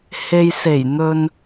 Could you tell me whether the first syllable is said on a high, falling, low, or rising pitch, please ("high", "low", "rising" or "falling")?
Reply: low